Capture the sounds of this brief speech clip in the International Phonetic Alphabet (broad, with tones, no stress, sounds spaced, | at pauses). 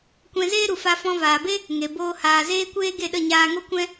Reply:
kʷ ɛ̃˧ z eː˦ ɾ u˨ f a˧ f ɔ̃˧ v aː˨ b e˦ | ŋ e˨ b oː˧ h aː˨ z eː˧ kʷ eː˧ ɡ e˦˨ ɗ ə˦˨ ɲ aː˧ ŋ o˦ kʷ ɛ̃˦